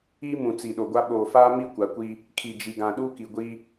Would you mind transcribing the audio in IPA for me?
i˦ m ũ˨ t͡s i˨ ɗ o˨ ɡʷ a˦ ɓ oː˨ f aː˦ m i˦ kʷ a˨ kʷ i˦ | kʰ i˨ d͡ʒ i˨ ɡ ã˨ ɗ u˦ k i˨ ɡʷ i˦

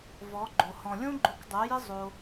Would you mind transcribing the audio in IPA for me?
v ɔ˨˦ ɡ͡ǃ o˨ h ɔ̃˨ lʲ õ˦ ɡ͡ǃ o˧ k dˤ o˨˦ j ɪ˦ zˤ o˧

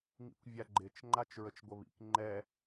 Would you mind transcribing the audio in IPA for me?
ŋ ḭ kʷ vʲ a ɡ͡ǃ ɪ t͡ʃ ŋ͡ǃ a t͡ʃ ɹ ə t͡ʃ ɡʷ ə β ḭ k ŋ͡ǃ ɛ

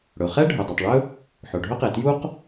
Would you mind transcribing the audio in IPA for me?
ɽ ɵ˩ χ ɛ˥ ɖʱ ɵ˩ dˤ ɵ˩ tˤ ɭ ɵ˥ | ħ ɵ˩ ɖʱ ɵ˥ q e˩ t j u˥ q

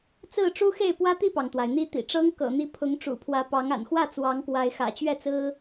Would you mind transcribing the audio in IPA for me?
t͡s ɹ̩˥˨ ʈ͡ʂ u˦ x e˥˨ ɪ̯ p w ä˦ t̪ i˥˨ p ɑ˩ ŋ t̪ w a˩ ɪ̯ n̪ i˨˦ t̪ ḭ˨˩ ʈ͡ʂ ɤ˦ ŋ k ɤ̰˨˩ n̪ i˨˦ pʰ ʊ˨˦ ŋ ʈ͡ʂ ṵ˨˩ pʰ w ä˨˦ p ɑ˨˦ ŋ a̰˨˩ n x w ä˥˨ t͡s w ɑ˨˦ ŋ k w a˨˦ ɪ̯ x ä̰˨˩ t͡ɕ ɥ ɛ˥˨ t͡s ɹ̩˦

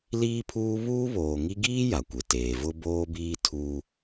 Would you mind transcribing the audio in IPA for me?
l iː˦ pʰ uː˦ β uː˦ β oː˨ ŋ i˦ ɡ iː˦ j a˨ kʷ ɪ˨ t eː˨ v ʊ˦ b oː˦ b iː˦ tʰ uː˦

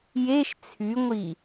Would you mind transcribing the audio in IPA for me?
j e ʃ t͡sʰ y ŋʷ i

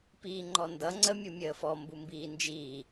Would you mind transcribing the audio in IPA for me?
p iː ŋ͡ǃ ɔ n d ʌ ŋ͡ǀ ə mʲ u mʲ əː f ɔ m b u m b iː n d͡ʒ iː

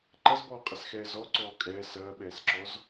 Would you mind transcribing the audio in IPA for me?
ǃ ɐ z b ɔː qʼ ɐ s x ɛː z ɔ ǀ ɔː kʼ ɛː s ɐː ɓ ɛː s ǁ ɔ z

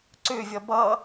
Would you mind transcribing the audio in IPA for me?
ǀ ʏ vʲ ʌ b ʌ

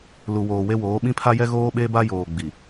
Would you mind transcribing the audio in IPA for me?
l u˨ w oː˨ w e˦ w oː˨˦ ɓ ĩ˦ pʰ a˦ j ɛ˦ ɣ oː˦ ɓ e˦ b a˦ j oː˨ ɡ͡b i˨

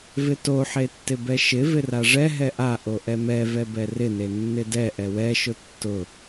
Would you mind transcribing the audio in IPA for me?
v ɪ t o ħ e tː ɪ b ɛ ʃ ɪ v ɪ r a ʐ ɛ ɦ ɛ ʔ a ʔ o ʔ ɛ m ɛ v ɛ b ɛ r ɪ n e nː ɪ d ɛ ʔ ɛ w ɛ ʃ ʊ tː ʊ

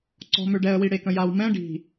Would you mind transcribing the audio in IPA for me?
ǀ ɔ̤ m ø ɖ ɛ ə̯ w i ɽ e k ə̃ j a w m ɛ̃ ɖ i̤

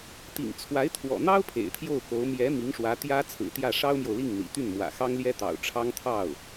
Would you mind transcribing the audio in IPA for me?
t̪ ḭ˨˩ ŋ t͡sʰ w a˧˥ ɪ̯ t̪ʰ w ɔ̰˨˩ n̪ ɑ˥ ʊ̯ pʰ ḛ˨˩ ɪ̯ t̪ʰ j o˥˩ ʊ̯ k o˧˥ ʊ̯ m j ɛ˧˥ m i˧˥ ŋ ʂ w ä˧˥ t̪ j ä˥ t͡sʰ ɹ̩˨˩ t̪ j ä˥˩ ʂ ɑ˥ ʊ̯ m j o˨ ʊ̯ l i˥˩ ŋ n̪ ḭ˨˩ t̪ y˥˩ n m w ä̰˨˩ x ɑ˥ ŋ l j ɛ˥ t̪ ɑ̰˨˩ ʊ̯ ʈ͡ʂʰ ɑ˥ ŋ t̪ʰ ɑ˥˩ ʊ̯

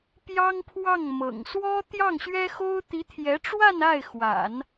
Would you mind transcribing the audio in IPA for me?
p j ɑ˥ ŋ pʰ w ɑ˥˩ ŋ m ɤ̰˨˩ ŋ s w ɔ˥ t̪ j ɑ˥˩ ŋ ɕ ɥ ɛ˥ x o˥ ʊ̯ t̪ i˧˥ t̪ʰ j ɛ˧˥ ʈ͡ʂ w a˥˧ n a˥˩ ɪ̯ x w a̰˨˩˦ n

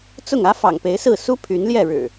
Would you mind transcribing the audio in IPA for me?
t͡s ʊ˥˨ ŋ ä˦ f ɑ̰˨˩ ŋ p e˨˦ ɪ̯ s ɹ̩˥˨ s u˦ pʰ y˨˦ n l j ɛ˥˨ ɻ ɻ̩˨˩

